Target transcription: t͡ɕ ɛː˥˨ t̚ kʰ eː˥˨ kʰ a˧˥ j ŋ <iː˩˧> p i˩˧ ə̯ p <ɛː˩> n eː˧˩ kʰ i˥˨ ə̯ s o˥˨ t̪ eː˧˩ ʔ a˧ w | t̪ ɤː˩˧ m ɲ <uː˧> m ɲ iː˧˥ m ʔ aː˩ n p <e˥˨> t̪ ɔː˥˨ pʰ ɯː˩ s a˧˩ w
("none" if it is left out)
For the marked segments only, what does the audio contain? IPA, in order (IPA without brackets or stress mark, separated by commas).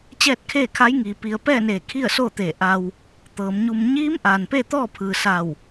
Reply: iː˩, ɛː˥˨, u˧, e˥˨